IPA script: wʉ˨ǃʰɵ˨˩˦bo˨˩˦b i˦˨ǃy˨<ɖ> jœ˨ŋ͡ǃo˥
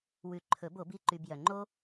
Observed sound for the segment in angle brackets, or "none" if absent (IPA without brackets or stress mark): b